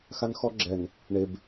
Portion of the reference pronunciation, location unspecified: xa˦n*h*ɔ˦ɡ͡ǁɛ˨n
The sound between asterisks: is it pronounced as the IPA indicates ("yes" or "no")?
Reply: no